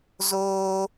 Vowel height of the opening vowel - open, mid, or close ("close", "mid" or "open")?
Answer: mid